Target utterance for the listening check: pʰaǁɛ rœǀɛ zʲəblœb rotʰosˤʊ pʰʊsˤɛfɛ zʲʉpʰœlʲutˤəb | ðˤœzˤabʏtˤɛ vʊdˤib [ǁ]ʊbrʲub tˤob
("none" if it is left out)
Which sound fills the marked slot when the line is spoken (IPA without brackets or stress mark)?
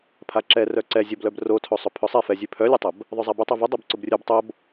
ǀ